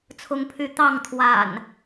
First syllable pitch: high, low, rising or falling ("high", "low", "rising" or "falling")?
high